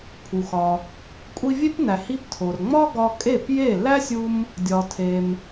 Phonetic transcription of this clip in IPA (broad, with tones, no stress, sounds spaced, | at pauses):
pʰ u˩ x ɒ˩ | kʷʼ i˧ vʲ e˥ p n æ˩ h i˧ p tʰ o˩ r ŋ͡m ɒ˥ ɡ ɒ˧ kʼ e˥˩ p j e˥˩ l æ˥ sʲ u˧ m | dʲ ɒ˩ tʰ e˩ m